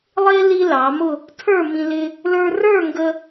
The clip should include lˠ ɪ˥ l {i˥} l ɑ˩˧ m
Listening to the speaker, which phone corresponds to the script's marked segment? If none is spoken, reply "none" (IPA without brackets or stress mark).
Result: i˥